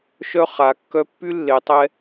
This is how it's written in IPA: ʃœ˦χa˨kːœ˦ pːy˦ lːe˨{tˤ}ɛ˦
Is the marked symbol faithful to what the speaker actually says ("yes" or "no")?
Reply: yes